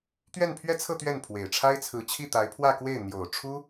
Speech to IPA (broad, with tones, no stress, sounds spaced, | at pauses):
t̪ ɥ ɛ˥˧ n pʰ ɥ ɛ˥˧ t͡sʰ ɤ˥˧ t̪ ɥ ɛ˥˩ n pʰ w e˨˩ ɪ̯ ʈ͡ʂʰ a˥ ɪ̯ t͡sʰ ɹ̩˧˥ t͡ɕʰ i˥˩ t̪ a˧˥ ɪ̯ pʰ w ä˥˧ k w e˥˩ ɪ̯ n̪ j o˨˩ ʊ̯ ʈ͡ʂʰ u˥